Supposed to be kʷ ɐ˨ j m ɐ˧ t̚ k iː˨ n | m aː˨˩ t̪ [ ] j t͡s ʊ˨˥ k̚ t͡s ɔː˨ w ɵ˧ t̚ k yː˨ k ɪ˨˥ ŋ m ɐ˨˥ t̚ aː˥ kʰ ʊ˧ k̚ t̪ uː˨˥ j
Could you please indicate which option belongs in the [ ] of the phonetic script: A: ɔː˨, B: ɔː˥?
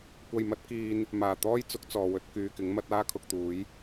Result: B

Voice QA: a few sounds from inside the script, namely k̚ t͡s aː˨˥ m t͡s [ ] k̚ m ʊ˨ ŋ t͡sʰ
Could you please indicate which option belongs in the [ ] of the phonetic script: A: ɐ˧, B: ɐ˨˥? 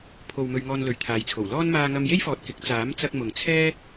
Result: A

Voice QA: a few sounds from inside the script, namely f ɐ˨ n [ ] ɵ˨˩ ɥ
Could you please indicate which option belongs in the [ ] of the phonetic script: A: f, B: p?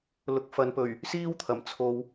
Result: B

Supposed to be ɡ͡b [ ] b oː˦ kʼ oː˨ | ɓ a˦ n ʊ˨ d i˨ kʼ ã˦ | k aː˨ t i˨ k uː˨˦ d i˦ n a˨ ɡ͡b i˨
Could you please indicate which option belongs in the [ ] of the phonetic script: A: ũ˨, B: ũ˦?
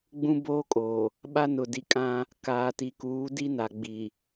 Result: B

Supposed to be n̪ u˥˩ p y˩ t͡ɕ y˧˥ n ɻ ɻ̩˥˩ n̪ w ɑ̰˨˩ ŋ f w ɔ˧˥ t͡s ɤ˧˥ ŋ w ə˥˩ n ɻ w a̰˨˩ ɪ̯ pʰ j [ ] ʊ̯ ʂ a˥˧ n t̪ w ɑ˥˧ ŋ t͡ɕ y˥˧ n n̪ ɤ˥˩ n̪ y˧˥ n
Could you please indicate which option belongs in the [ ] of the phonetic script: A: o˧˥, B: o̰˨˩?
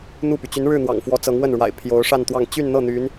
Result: A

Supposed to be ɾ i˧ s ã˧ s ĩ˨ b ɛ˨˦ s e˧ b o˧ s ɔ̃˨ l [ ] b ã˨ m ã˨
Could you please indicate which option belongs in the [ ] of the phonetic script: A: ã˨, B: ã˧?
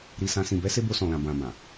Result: A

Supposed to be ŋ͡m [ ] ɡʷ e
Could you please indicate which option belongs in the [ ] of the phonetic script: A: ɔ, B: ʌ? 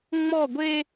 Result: A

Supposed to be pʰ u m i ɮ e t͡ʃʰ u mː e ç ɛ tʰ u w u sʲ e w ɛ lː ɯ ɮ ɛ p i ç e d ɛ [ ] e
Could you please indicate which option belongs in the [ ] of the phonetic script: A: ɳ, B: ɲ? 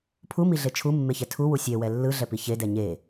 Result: B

